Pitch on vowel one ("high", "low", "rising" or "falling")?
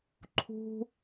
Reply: high